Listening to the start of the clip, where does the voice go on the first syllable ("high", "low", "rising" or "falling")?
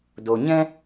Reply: low